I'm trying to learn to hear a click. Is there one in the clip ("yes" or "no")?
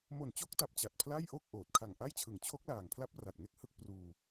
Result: no